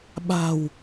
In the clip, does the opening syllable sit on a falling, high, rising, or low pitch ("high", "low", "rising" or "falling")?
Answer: low